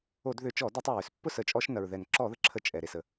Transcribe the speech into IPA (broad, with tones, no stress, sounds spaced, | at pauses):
o˧˩˧ d ð ʏ˧˩˧ t͡ʃ ɔ˧˩˧ d ɔ˧˩˧ tˤ ɛ˩ ɹ ʏ˧˩˧ s pː ʊ˥˩ s ə˧˩˧ t͡ʃʼ ɔ˧˩˧ ʃ n ɐ˩ ɹ ð ɛ˩ n ǁ ɔ˧˩˧ ð ə˩ ǁʰ ə˧˩˧ t͡ʃʼ ɛ˩ ɾ e˩ s ə˩